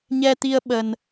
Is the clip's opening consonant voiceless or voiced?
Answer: voiced